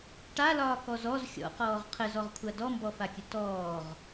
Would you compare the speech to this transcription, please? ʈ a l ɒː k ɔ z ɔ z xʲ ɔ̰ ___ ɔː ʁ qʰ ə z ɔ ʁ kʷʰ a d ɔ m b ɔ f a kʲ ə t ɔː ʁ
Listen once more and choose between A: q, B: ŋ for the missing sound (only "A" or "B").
A